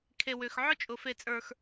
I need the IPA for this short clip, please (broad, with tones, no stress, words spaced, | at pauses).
kʰe˨wʏ˨x ʕʊ˦t͡ʃʼʊ˨ fe˦˨t͡sʼə˞˦x